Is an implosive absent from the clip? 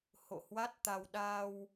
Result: no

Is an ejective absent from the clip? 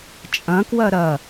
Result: no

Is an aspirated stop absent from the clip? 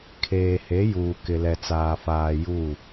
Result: no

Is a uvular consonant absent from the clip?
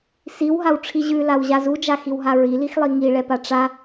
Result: yes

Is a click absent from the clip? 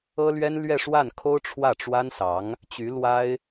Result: yes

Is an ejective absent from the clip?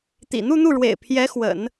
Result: yes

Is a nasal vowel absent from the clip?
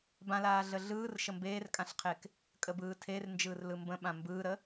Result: no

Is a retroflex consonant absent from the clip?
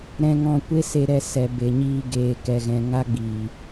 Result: yes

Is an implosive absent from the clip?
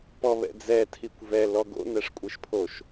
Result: yes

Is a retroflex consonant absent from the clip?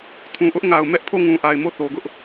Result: yes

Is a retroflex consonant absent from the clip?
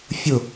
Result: yes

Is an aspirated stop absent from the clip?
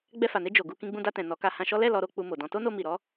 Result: yes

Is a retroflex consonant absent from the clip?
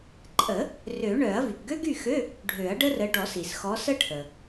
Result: no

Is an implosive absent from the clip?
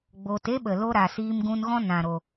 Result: no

